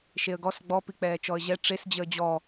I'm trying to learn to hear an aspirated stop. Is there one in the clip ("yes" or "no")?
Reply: no